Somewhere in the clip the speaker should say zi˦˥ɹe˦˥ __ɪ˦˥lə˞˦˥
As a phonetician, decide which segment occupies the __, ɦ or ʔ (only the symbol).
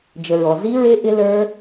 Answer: ʔ